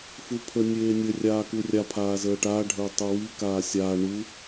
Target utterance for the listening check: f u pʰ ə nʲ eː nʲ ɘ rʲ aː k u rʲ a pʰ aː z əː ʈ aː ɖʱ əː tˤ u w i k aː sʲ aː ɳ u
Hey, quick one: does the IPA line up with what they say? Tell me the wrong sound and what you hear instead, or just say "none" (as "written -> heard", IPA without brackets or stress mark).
none